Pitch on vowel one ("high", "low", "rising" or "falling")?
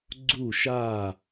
falling